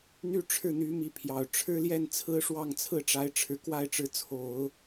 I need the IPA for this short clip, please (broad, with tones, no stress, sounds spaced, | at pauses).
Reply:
n̪ y˥˧ ʈ͡ʂʰ ɻ̩˥˩ n̪ y˧˥ m i˧˥ pʰ j ɑ˨˩ ʊ̯ ʈ͡ʂʰ ɻ̩˥ l j ɛ˥˩ n t͡sʰ ɹ̩˥ ʂ w ɑ˥˧ ŋ t͡sʰ ɹ̩˥˩ ʈ͡ʂ a˧˥ ɪ̯ ʈ͡ʂʰ ɻ̩˨˩ k w a˥˩ ɪ̯ ʈ͡ʂ ɻ̩˧˥ t͡sʰ o˨˩˦ ʊ̯